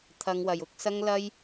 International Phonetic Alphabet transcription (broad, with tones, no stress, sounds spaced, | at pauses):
t̪ʰ ɐ˨˧ ŋ w ɐ˨˩ j ʊ˨˥ k̚ s ɐ˥ ŋ l ɐ˥ j